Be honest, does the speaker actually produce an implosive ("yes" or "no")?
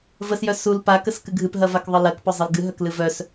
no